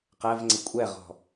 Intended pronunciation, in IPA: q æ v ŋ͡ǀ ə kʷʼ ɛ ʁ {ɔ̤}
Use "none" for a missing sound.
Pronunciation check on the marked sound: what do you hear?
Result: ɔ̤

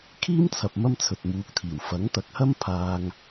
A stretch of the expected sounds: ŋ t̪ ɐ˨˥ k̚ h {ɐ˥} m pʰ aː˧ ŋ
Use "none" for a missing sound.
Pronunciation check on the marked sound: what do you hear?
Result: ɐ˥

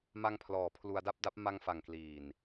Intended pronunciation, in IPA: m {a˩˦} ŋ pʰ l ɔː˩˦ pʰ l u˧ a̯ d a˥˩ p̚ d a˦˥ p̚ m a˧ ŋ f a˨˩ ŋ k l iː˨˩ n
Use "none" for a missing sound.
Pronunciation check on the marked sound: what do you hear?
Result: a˧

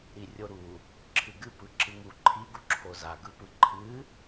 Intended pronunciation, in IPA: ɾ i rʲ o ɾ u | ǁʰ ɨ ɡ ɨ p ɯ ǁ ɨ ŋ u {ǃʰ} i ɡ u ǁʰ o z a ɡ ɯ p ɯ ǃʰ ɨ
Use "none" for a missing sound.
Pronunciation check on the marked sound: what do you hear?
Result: ǃʰ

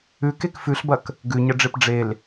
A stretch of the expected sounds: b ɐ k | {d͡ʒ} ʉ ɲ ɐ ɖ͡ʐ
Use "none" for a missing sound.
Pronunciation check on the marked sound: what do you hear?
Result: ɡ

